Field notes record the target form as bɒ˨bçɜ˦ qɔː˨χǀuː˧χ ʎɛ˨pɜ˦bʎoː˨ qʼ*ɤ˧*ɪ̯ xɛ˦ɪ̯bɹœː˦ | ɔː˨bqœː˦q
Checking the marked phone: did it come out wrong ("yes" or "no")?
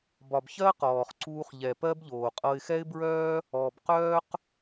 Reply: no